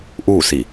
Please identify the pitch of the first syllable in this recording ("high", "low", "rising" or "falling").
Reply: falling